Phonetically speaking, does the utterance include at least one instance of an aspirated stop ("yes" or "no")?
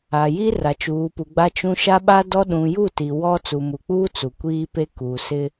no